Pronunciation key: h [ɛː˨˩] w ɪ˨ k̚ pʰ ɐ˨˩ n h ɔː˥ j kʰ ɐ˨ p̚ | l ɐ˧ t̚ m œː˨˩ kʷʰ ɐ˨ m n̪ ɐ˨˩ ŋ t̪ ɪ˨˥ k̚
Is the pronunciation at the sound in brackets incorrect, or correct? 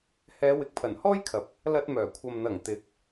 incorrect